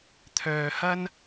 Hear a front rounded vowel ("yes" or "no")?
yes